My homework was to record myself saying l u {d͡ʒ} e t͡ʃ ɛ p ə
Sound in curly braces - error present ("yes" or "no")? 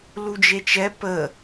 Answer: no